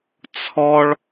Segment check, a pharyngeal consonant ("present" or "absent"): absent